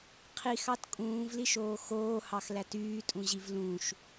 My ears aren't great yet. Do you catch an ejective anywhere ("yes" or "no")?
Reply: yes